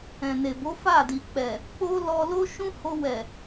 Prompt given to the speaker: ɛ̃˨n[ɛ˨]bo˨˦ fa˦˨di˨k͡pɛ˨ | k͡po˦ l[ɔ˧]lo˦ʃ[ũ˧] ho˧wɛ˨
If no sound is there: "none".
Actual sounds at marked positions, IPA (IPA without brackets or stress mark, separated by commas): e˨, ɔ˧, ũ˦